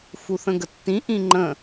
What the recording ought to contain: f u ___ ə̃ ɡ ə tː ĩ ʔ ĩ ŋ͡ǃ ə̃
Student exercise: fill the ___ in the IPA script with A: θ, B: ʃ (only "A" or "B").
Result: A